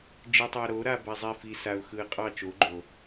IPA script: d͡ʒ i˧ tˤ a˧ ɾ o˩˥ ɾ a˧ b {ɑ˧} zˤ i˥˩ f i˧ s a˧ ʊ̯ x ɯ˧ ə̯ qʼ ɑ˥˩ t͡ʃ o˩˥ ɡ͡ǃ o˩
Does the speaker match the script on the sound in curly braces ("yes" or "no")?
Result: no